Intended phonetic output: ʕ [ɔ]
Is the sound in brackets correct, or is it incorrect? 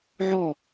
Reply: correct